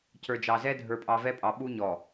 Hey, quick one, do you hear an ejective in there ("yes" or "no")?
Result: yes